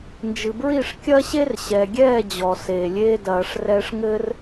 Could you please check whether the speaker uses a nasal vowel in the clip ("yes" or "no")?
no